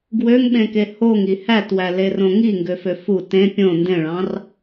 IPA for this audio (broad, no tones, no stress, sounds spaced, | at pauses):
ɡ w ø ŋ ɓ ẽ k e h o ŋ i h æ t w æ l e r õ ŋ i ŋ ɡ ø f ø f u t ẽ pʲ õ n d ẽ ɭ ɑ̃ r